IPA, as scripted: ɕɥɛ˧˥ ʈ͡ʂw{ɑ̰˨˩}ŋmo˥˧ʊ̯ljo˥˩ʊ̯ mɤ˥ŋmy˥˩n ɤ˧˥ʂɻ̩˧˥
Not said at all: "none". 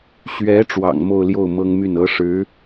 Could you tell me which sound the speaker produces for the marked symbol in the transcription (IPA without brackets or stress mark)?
ɑ̰˨˩